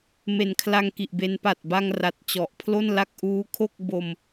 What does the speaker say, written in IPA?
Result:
me˨˩nkʰla˧ŋki˨˩ʔbe˧n pa˨˩t̚ba˧ŋ ra˨˩t̚t͡ɕɔ˨˩ʔ pʰlo˥˩nla˥˩k̚ ʔuː˦˥kʰo˥˩k̚bo˧m

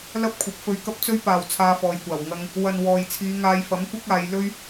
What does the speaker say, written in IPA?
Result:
lɐ˥p̚kʷʰɐ˨˥p̚fɵ˧ɥ kɐ˥p̚t͡sɵ˥ɥ paː˨w t͡sʰaː˧fɔː˨jkʷaː˨˩w ŋɐ˧ŋ | wɐ˨n wɔː˨jt͡sʰiː˨˧ŋaː˧jfɐ˨˥m kʷɐ˥k̚aː˨˧j lɵ˥ɥ

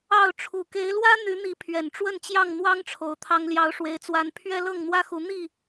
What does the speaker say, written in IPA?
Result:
ɑ˥˨ʊ̯ ʈ͡ʂʰu˨˩ke˨˦ɪ̯lwä˦ n̪y˨˦n̪i˨˦ pʰɥɛ˨˩nʈ͡ʂwə˥˨nt͡ɕjɑ˥˨ŋ n̪wɑ˦ŋʈ͡ʂʰo˨˦ʊ̯ t̪ʰɑ˦ŋljɑ˦ʊ̯ʂwe˦ɪ̯t͡swa˦n pʰɥɛ˦lɤ˥˨ŋn̪wä˦xu˨˦ n̪i˥˨

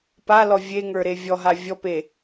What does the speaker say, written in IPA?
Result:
palɔ vʲeŋə˞ɾe vʲɔɦa vʲɔpe

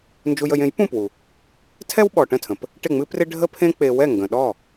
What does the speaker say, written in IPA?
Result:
nd͡ʒu˧jə˧j ẽ˩˥j pũ˥˩pwu˩ | tʰɛ˥wɓɔ˩ʈə̃˥˩tʰə̃˩p | ʈɪ˥˩ŋ͡mɨ˥prɪ˥ ɖʱə˥pʰẽ˥ k͡pe˧ wɛ˥˩ŋɡə̃˩ ɗɔ˥˩

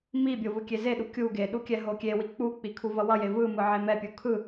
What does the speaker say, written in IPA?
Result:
mibʲo vɯkʲezeɗu kʲu ɡeɗu kʲɛɦokʲewi k͡puk͡pi kʰuvʌwʌje vɯmɯ ʕemɛpʲu kʰɯ

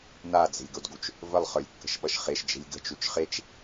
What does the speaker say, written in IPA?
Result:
nad͡ze̤lʲɡodɡut͡ʃ | vəlˠχə˞lʲkːə̤ʃɓʌʃ χeʃd͡ʒe̤lʲ ɡə̤t͡ʃut͡ʃ χet͡ʃ

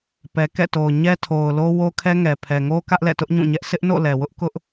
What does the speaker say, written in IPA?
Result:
pɛ˨kɛ̰˦˨to˨ʊ̯ ɲɛ˦tʰo˨ʊ̯ lo˦wo˦kʰɛ˦ŋɛ˨ pʰɛ˨ŋo˦ kä˦ʔlɛ̰˦˨tʊ˦ʔ ɲũ˦˨ɲɛ˦ʔ sɪ˦ʔno̰˦˨ lɛ˨wʊ˦ʔ kʊ˦ʔ

